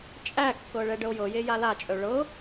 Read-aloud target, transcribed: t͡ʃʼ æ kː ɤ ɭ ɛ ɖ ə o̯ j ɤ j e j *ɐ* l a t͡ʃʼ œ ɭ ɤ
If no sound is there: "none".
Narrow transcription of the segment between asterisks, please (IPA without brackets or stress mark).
a